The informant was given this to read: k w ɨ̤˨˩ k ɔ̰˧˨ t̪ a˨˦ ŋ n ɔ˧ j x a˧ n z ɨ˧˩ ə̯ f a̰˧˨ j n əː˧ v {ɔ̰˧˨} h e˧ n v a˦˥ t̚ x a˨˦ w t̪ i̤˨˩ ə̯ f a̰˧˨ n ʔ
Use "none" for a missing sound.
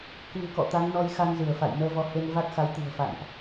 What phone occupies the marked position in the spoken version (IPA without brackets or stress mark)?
ɔ˨˦